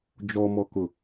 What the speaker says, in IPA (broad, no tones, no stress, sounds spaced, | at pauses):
d͡ʒ ɔ m ɔ k ʊ